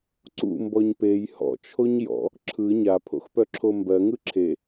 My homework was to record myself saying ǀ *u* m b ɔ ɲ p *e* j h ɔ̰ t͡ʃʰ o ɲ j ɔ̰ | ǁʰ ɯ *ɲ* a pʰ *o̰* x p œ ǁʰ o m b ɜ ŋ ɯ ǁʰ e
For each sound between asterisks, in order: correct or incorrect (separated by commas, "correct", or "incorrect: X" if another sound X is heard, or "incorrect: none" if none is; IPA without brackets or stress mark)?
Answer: incorrect: ṵ, correct, correct, correct